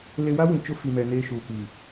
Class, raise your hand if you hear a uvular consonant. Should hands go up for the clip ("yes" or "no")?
no